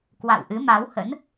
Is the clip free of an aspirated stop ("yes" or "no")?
yes